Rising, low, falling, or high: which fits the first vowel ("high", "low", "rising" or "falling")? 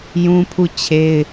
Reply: high